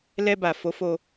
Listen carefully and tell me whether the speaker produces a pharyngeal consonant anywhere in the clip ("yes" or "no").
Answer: no